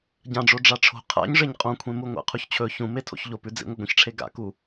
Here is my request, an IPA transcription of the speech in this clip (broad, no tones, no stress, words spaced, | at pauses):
ɟãɖ͡ʐo ɖ͡ʐaʈ͡ʂʰo̤ qʰa̰ɲʐeɲ qʼõkʷʰẽmuŋʷa̰ qʰuçt͡ɕʰɵ çũ metʰo̰çʎopʉ d͡zḭŋʷɐɡʷĩçʈ͡ʂʰe ɡa̰ku